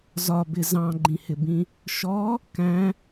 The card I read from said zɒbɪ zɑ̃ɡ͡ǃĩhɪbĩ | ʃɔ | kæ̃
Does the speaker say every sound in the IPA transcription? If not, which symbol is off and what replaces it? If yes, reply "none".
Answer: none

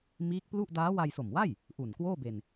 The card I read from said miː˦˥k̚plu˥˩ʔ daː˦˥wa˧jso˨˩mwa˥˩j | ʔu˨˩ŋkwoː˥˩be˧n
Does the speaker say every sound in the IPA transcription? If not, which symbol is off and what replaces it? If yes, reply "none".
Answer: ŋ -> n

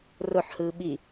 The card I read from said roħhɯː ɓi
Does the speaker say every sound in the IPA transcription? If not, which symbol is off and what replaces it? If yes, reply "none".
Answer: none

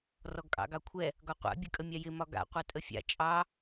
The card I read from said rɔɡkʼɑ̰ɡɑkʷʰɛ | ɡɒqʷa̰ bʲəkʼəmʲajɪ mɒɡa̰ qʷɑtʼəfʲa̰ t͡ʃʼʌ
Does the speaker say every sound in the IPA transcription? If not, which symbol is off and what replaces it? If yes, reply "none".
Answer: ʌ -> ɑ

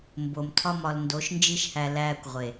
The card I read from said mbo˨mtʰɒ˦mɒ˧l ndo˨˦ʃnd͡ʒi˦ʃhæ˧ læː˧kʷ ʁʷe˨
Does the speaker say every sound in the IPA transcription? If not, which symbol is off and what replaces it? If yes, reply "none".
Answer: none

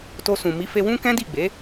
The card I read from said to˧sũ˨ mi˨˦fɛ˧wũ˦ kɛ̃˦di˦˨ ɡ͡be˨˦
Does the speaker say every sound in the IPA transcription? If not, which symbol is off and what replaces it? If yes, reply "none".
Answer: ɛ˧ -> e˧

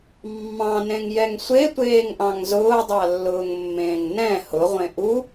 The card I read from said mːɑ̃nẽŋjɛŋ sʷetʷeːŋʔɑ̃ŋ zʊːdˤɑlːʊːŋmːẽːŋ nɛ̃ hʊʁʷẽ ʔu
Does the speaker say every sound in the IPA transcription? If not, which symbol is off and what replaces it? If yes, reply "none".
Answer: none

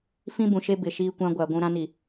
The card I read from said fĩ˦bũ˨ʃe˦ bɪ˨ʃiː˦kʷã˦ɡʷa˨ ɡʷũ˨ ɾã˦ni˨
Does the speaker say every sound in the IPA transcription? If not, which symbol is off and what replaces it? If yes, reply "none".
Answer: none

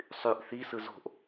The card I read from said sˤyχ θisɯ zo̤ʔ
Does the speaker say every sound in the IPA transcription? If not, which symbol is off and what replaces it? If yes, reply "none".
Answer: χ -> ʔ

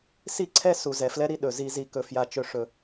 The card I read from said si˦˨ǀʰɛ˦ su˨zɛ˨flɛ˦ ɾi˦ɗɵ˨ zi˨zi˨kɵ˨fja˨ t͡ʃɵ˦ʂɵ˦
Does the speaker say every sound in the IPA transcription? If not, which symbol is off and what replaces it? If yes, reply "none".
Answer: none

